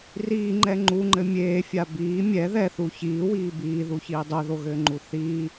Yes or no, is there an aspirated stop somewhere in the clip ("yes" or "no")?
no